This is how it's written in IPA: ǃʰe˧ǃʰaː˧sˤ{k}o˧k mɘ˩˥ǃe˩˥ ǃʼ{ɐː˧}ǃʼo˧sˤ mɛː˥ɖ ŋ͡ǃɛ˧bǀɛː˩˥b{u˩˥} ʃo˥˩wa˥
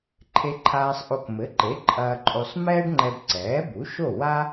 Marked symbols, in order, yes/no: no, yes, yes

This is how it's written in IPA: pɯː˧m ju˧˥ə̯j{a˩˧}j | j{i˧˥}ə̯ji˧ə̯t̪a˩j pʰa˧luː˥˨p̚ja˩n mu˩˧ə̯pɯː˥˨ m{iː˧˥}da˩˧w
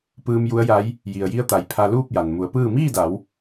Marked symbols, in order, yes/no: no, no, no

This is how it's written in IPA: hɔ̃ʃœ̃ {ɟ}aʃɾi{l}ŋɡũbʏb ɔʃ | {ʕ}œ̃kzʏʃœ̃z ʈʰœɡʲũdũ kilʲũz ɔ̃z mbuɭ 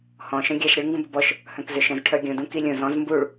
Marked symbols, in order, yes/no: no, no, no

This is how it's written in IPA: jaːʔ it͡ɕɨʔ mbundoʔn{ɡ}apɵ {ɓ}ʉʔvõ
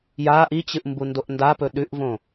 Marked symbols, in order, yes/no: no, no

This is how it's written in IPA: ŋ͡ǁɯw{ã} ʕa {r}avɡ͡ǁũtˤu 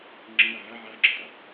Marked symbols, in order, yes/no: no, no

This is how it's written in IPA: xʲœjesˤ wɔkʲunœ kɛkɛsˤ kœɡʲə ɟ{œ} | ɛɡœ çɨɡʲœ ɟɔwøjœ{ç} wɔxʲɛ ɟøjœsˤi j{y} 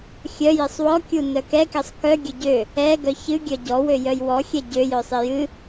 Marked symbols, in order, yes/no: no, no, no

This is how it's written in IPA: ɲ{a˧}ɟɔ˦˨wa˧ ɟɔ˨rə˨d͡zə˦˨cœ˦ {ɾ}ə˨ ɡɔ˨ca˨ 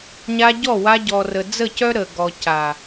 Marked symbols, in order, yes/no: yes, yes

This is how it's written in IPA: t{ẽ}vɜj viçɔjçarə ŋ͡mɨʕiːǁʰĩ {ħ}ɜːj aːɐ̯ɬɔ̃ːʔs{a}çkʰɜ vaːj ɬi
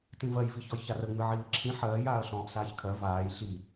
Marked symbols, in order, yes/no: no, yes, no

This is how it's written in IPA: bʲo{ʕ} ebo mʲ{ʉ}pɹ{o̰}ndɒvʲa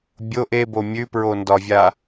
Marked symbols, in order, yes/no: no, yes, no

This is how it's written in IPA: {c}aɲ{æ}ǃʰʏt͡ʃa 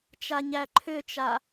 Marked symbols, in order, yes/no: no, yes

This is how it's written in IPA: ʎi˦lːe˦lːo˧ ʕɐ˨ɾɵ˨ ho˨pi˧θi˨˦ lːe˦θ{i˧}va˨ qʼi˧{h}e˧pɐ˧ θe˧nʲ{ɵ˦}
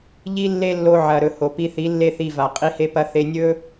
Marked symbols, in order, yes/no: yes, yes, yes

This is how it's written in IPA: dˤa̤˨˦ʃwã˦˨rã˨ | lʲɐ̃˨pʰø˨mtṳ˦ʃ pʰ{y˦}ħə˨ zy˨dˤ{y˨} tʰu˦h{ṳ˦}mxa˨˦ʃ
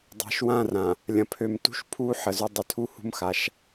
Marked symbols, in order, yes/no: no, no, yes

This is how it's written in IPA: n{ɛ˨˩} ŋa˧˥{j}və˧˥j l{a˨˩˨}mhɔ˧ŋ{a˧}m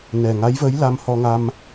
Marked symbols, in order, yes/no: yes, yes, no, yes

